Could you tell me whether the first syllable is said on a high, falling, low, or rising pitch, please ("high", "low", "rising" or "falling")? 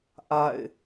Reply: falling